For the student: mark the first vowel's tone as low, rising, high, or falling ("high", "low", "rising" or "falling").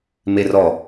low